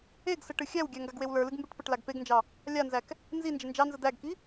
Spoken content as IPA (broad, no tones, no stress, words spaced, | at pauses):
eɡsə ʈɨxʲæwɡʲæ ŋɡaɡwewlə˞lɨɡ mbeʈpəʈlaɡ peɡnd͡ʒɑ | lʲanzæk | nzi nd͡ʒənd͡ʒɑnzə d̪æɡki